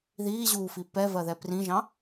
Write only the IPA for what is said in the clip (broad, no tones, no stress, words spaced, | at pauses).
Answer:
ðiːʑuːfi pɛvɜðɛ prĩʒɑ̃